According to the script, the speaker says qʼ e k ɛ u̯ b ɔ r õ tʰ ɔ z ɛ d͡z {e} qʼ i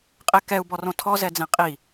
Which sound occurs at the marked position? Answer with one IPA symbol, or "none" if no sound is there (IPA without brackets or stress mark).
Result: ẽ